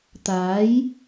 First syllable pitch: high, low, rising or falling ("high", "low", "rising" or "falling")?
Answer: rising